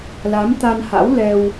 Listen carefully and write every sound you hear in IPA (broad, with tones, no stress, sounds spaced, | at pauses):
l a˨˦ m t̪ a˧ n h a̰˧˥ w l ɛ˧ w